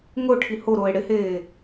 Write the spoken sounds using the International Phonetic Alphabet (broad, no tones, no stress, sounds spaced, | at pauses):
ŋ ʊ ʈʰ i h o ɾ ʊː e̯ ɽ ɪ h eː